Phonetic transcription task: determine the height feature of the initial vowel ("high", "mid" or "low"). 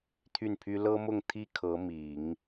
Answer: high